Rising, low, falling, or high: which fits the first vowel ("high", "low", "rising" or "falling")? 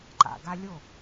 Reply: low